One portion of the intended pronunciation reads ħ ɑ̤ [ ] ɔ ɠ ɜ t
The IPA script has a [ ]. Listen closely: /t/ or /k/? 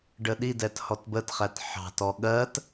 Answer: t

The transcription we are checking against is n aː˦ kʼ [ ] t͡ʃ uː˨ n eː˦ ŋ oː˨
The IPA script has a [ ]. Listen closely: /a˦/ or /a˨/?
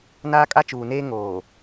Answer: a˦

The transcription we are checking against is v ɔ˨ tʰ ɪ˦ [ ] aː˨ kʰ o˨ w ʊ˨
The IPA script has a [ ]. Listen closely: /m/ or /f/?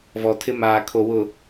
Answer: m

